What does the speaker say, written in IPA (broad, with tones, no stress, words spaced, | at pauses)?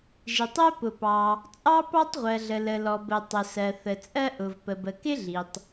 ʒi˩tˤɜ˥ pʊ˩pɑ˩ | t͡sʼɑ˥pɑ˥tˤʁʷɜ˩ɮə˩ lə˩lɔ˩bə˩ tˤʊ˩sɜ˩ θə˩t͡sʼɜ˥ʔʊ˩v pə˩bə˩ kɪ˥ɮi˩tˤ